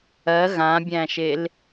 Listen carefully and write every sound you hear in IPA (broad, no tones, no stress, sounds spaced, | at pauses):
ɜ ɣ ã bʲ æ̃ ʃ e l